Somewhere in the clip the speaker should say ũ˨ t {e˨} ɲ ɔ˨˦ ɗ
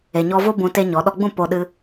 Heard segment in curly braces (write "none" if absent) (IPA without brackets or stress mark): e˦